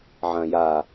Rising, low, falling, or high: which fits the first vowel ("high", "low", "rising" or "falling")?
low